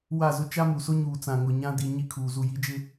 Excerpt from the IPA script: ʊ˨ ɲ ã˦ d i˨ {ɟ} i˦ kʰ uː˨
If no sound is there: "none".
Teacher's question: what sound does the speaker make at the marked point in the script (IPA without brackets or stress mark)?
ɲ